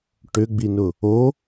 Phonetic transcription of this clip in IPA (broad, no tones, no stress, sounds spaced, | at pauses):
ʈ ʏ ɡ͡b i n ʊ | o